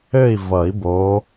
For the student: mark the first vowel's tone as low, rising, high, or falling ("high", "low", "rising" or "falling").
falling